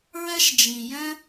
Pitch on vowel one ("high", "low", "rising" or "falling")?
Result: high